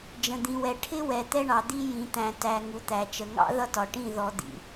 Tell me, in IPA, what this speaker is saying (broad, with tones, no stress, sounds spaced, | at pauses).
d͡ʒ ə̃˨ d̪ ĩ˨ w ɛ˨ ʈʰ ɪ˦ w ɛ˨ t̪ ɛ˦ ɳ ɑ˨ d̪ i˦ j ĩ˨ t̪ æ̃˨ t æ˨ ŋ u˨ t̪ æ˨ t͡ʃ ə˨ ŋ ɑ̰˦ ð ʌ˦ t ɒ˨ ʈ ĩ˦˨ ð ɔ˨ d̪ ḭ˨